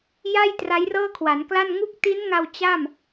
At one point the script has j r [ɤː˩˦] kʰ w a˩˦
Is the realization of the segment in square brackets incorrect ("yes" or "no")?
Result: yes